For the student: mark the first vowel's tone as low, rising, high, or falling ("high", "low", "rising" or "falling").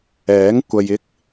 rising